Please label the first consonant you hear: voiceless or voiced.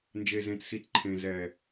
voiced